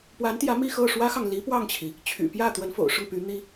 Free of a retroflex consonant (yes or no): no